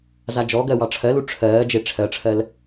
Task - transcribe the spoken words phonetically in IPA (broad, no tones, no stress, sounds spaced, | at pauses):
z a d͡ʒ ɔ ɡ ɜ w ɑ ʈ͡ʂʰ ɜ l u ʈ͡ʂʰ ɜː d͡ʒ e ʈ͡ʂʰ ɜ ʈ͡ʂʰ ɜ l